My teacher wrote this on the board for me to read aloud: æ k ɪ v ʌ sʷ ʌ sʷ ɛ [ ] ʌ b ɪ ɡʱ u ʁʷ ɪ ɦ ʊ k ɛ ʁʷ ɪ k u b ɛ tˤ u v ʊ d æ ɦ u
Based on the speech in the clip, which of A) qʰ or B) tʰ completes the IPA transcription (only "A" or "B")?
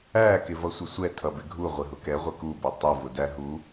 B